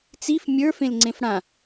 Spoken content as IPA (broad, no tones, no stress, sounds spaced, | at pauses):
t͡s i f mʲ ə˞ f ẽ l ŋ͡ǀ ẽ f ɽ ã